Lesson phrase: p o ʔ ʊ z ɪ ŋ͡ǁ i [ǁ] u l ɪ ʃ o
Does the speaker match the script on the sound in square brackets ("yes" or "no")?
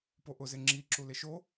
yes